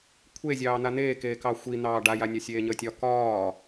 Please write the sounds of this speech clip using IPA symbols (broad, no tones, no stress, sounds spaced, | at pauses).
kʷʰ e zʲ ɑː n̪ a n̪ eː k eː k ɑ xʷ i n̪ ɑː ɖ a j a nʲ ɒ sʲ eː ɲ əː tʲ ɒ k ɒː